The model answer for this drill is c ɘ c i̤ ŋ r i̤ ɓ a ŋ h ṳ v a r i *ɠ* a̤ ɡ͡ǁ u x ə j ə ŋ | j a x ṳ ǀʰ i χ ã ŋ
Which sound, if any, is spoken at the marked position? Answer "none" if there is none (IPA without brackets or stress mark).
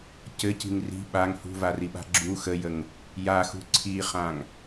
ɓ